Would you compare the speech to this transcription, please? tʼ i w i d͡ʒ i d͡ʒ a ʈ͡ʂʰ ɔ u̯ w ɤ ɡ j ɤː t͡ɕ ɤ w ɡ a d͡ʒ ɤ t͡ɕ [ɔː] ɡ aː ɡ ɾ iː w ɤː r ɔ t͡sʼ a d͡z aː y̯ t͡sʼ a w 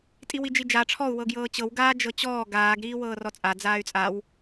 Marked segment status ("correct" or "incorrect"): correct